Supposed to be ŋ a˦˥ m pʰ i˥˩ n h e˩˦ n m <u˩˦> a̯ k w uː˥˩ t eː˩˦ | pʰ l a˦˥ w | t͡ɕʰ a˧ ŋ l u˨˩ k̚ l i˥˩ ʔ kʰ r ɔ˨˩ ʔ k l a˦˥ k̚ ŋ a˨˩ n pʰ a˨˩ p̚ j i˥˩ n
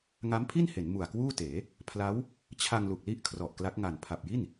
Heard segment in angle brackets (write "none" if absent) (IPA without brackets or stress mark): u˨˩